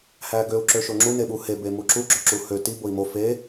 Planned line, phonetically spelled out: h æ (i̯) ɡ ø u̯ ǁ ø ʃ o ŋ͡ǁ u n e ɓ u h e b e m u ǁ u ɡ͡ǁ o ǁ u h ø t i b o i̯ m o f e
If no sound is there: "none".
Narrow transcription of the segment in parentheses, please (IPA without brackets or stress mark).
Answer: none